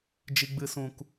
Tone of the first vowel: high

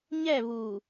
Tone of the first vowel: falling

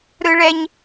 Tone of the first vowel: high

